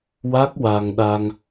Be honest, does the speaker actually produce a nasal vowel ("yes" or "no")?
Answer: no